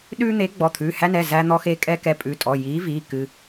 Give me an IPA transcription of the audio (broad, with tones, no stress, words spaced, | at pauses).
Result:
ɗʉː˦n̪e˨˥ɡ͡bɔ˩˧˩ t̪ʰʉː˩˧˩hæ˦nɛ˩˧˩ zæ˦n̪ɔ˦xe˦ kʼɛ˦kɛ˨˥pʼʉ˩˧˩tʼɔ˩˧˩ ji˨˥ viː˩˧˩ kɨ˦